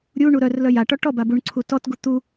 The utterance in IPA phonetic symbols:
ɾʲ u ɳ u ɾ œ r l œ j a ʈ ɔ ʈ ɔ b a b u ɳ ǀʰ u t ɔ t ɡ u t̪ u

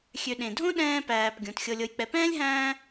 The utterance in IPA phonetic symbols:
xʲ ø˨ ɗ ẽ˩ dʱ õ˥ ɗ ɛ̃ː˦ p æː˨ p ɡʲ õ˩ t xʲ ɤ˨ lʲ ɤ˨ j k͡p ɛ˨ p ɛ̃ː˥ lʲ ɦ æ̃ː˦

